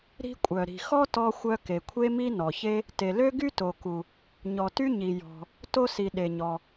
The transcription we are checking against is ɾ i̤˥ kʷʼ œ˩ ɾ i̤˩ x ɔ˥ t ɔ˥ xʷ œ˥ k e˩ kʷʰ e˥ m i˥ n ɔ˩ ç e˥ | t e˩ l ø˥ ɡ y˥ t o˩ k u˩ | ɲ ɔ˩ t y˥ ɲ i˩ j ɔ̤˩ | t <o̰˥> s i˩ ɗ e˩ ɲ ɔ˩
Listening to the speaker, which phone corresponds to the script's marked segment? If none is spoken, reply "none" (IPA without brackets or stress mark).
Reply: o˥